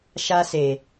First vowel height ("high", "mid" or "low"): low